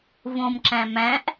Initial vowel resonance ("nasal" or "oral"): nasal